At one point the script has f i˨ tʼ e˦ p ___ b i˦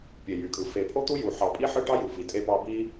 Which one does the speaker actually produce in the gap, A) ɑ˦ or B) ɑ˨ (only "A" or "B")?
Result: A